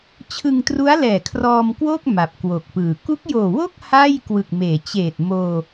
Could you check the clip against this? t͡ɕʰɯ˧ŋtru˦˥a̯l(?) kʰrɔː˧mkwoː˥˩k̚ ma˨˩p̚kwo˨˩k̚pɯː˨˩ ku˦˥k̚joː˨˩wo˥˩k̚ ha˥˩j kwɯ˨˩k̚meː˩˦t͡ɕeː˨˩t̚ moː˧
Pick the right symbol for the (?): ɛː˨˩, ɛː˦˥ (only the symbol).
ɛː˨˩